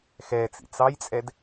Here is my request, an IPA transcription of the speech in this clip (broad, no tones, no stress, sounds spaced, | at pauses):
x ɛ t͡s ḭ t͡s ɑ j t͡sʼ ɛ d